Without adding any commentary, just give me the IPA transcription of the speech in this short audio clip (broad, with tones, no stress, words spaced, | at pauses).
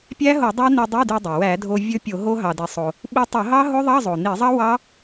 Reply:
pʲæ˦˥ɦo˧˩˧ dˤɑ˦˥ ni˧dˤi˧˥˧dy˧dˤe˩ wæ˧˩˧dʱo˧ vʲɵ˦˥pʲo˧˩˧ɦo˦˥ ɦɑ˧de˧sˤo˧ | ɓi˧tˤo˧˩˧ɦɑ˦˥ɦo˦˥ ðˤɑ˧˥˧zˤo˩ni˧˩˧zˤɑ˦˥ wɑ˦˥